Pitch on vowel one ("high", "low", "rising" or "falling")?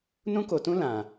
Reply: high